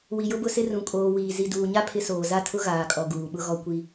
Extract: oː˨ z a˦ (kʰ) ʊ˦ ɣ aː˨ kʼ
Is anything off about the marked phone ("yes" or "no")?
yes